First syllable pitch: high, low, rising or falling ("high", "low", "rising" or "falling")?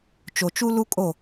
low